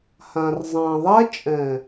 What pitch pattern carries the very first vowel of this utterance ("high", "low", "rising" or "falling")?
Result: low